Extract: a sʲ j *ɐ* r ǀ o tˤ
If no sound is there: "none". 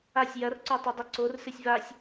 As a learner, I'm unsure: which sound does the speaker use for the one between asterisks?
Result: ɐ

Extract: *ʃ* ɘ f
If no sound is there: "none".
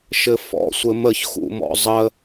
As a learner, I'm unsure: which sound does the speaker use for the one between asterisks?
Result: ʃ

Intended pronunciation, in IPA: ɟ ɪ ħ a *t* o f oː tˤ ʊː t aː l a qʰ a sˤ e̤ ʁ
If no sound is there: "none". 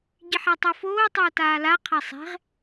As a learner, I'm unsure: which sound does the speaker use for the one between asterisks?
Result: tˤ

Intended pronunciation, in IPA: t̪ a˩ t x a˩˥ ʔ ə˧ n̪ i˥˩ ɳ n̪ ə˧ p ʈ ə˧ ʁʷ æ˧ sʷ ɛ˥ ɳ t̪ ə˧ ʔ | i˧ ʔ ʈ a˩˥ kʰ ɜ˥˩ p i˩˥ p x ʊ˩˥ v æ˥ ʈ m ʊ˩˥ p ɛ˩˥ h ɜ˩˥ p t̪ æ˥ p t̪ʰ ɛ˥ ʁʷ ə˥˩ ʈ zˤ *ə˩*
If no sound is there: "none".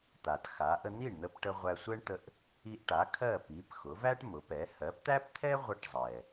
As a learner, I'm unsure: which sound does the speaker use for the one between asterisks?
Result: ɛ˩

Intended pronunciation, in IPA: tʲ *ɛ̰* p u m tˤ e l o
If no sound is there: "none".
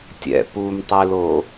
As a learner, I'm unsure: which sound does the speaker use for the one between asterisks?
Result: ɛ̰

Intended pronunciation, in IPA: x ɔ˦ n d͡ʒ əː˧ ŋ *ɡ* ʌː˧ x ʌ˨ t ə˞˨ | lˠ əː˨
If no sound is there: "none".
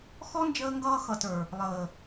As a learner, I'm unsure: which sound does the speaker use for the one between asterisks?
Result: ɡ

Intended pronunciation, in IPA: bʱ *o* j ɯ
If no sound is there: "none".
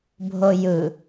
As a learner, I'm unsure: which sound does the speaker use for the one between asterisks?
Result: o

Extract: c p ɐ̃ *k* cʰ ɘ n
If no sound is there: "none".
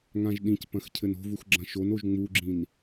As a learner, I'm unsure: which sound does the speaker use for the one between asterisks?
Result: x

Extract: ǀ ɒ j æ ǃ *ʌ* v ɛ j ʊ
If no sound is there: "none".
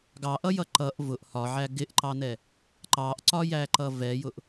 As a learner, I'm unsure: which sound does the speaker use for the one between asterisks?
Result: ʌ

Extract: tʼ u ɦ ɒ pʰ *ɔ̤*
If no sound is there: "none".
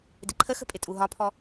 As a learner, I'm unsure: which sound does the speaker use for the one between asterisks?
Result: ɔ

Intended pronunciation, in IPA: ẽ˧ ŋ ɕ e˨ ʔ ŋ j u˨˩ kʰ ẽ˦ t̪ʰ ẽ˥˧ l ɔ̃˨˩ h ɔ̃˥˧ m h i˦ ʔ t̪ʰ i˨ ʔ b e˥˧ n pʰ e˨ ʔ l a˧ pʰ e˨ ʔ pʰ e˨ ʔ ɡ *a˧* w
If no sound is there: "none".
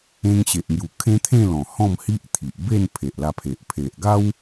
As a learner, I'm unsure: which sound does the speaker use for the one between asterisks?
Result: a˦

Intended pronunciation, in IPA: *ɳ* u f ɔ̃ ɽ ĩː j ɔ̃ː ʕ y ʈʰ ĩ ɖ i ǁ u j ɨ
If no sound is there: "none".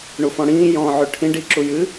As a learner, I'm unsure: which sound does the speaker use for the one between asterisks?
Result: ɳ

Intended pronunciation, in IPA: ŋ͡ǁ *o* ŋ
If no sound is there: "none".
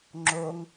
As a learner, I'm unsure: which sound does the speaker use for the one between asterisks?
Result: o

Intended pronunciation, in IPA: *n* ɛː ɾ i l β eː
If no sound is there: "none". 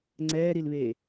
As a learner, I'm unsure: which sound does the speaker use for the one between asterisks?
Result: ŋ͡ǀ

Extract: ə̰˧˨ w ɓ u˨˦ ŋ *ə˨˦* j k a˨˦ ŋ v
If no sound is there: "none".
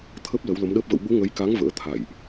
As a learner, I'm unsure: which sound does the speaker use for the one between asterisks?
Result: ə˨˦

